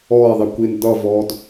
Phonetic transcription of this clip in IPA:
ɔː ɪ̯ ðˤ i kʷ i n d ʌ v ɔː d

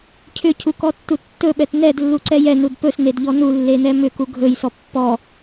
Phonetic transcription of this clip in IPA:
cʰ ʏ cʰ u k ɔ tː u tː ɵ ɓ ɛ t n ɛ d lː u ǀ ɛ j ɛ n u d p ɵ s n e d ʎ ɔ n u lː e n ɛ m ʏ k u ɡʱ ɵ j s ɔ pː ɔ

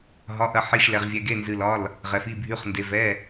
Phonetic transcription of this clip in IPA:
ɦ ɒ˩˧˩ ʔ ɐ˩˧˩ ħ i˩˧˩ ʃ l ɛ˩ ʁ vʲ ɛ˩ ɡ e˩˧˩ n z ɨ˩ l ɒ˩˧˩ l | ʁ ɛ˩ f i˩˧˩ bʱ y˩˧˩ χ n d e˩ v ɛ˩˧˩

